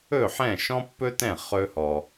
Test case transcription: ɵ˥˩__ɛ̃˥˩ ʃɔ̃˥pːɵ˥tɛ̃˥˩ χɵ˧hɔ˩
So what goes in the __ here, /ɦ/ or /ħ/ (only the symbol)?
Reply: ħ